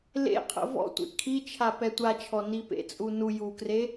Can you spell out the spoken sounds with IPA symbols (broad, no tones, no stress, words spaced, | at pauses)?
lḛqʰə̰ vɔ̰tʷḛ kʰit͡ʃʰa pɛtʷat͡ʃʰɔ nipḛt͡sʼu nu jukre